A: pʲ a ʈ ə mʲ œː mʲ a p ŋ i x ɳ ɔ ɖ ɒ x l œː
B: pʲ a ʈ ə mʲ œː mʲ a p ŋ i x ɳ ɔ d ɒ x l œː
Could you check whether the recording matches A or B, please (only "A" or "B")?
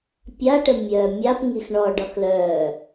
A